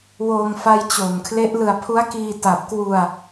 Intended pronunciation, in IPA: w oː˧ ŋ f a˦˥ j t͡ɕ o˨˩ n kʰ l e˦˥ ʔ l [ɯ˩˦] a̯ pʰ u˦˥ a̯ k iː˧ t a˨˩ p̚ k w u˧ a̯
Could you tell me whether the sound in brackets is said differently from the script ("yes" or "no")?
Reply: yes